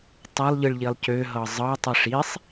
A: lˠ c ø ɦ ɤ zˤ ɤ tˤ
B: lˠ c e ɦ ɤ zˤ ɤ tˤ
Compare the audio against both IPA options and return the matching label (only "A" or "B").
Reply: A